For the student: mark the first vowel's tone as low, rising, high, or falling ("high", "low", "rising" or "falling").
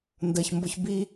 low